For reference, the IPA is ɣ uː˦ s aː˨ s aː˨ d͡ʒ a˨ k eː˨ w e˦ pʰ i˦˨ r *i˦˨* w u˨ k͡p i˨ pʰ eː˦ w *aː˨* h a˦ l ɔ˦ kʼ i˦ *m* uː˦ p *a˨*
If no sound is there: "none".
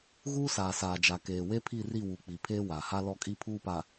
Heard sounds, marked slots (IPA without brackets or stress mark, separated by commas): i˦˨, aː˨, pʰ, a˨